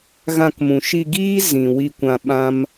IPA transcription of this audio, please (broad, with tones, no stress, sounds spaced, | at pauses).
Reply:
ɣ ã˦˨ k m ũ˨ ʃ i˧ ɡ iː˦ z ĩ˨ w i˧ kʷ ã˧ ɓ ã˦ m